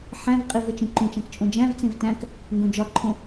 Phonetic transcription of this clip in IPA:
ħæ̃vqʼiv et͡ʃĩǃũt͡ʃæ̃k t͡ʃʼõd͡ʒæ̃vt͡sẽv tæ̃k | ŋɡõd͡ʒɒǃʰõ

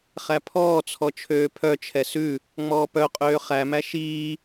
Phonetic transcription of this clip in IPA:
χæpʰɔːt͡sʰɔ t͡ʃʰøːpʰœt͡ʃʰɛ sʉ | ŋ͡mɔːpœqʼøː χæmæ ʃiː

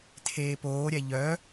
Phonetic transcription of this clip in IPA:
tʰeːpoːɾʲɛ ʎœ

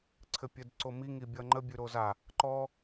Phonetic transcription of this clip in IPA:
ǀʰɘpʲɘdǀomi ŋibʲʌŋ͡ǃə bʲʉɾoza | ǃɔ

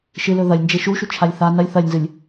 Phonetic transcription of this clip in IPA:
ʃɨlɵ ðɐlʲnd͡ʒe ʃuʃut͡ʃʰalʲ θa nɐlʲ θɐlʲnzɨlʲ

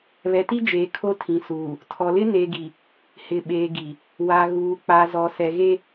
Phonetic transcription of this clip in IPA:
βɛ˨ti˦d͡ʒeː˨ kʰo˦tʰĩ˨suː˨ | tʰɔ˨lɪ˦ ne˨ɡi˨ | hɪ˨ɓeː˨ɡi˨ | wa˨ɣuː˨k͡pa˨ zɔ˨ sɛ˨ɣe˦

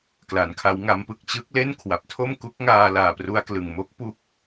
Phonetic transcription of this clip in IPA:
kla˩˦nkʰa˦˥wŋa˦˥m pɯ˨˩k̚t͡ɕɯ˦˥k̚le˥˩n kʰwa˨˩p̚tʰo˥˩mku˦˥k̚ŋaː˧ laː˨˩pru˧a̯klɯ˨˩ŋmo˦˥k̚ pu˦˥k̚

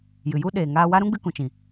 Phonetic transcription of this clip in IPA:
jɨ˨ju˦ɗeː˨ ŋaː˧wa˦ ɾũ˦ɡ͡bɨ˧kũ˨t͡ʃĩ˨

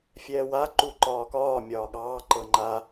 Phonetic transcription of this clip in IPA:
fʲɛːwa ǃuǃɒːkɒː mʲɒːɠɑː ǃɤŋ͡ǃa

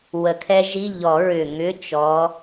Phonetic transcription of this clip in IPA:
wə˨˩˦kʰɛ˦˥ʒi˧˥˧ ʎɔ˨˩˦ɹʏ˨˩ŋʏ˧˥˧ t͡ʃɔ˨˦

